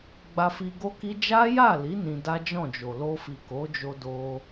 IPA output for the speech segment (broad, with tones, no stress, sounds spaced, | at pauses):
ɡ͡b a˧ f i˧ ɡ o˦ k i˦ d͡ʒ a˦ j a˦˨ l i˨˦ n ĩ˧ d a˦ d͡ʒ ɔ̃˦˨ d͡ʒ o˨ l o˧ f i˨ k o˨˦ d͡ʒ o˧ d o˧